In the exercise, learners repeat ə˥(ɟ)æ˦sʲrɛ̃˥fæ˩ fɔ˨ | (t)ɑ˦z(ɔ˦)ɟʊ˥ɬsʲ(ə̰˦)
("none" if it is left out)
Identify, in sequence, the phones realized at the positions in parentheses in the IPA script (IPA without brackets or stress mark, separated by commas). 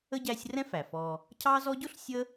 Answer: ɟ, cʰ, ɔ˦, ə˦